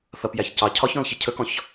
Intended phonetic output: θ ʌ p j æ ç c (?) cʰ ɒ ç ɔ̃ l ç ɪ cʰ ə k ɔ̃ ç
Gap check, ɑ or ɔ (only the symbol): ɑ